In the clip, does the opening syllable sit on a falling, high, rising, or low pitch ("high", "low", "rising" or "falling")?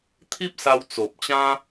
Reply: high